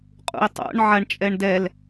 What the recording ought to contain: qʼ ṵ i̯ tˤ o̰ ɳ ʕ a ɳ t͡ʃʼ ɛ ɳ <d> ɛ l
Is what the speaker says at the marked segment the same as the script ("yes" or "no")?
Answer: yes